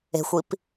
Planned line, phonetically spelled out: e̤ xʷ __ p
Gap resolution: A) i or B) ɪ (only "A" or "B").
A